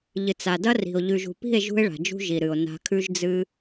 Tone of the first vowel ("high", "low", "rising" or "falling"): low